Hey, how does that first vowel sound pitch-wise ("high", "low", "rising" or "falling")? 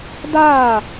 falling